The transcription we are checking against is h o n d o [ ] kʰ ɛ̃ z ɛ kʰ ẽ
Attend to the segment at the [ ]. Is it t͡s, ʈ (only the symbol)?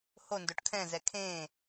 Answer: ʈ